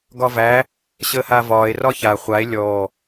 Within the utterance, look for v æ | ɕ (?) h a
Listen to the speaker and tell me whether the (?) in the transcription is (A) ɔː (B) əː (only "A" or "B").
B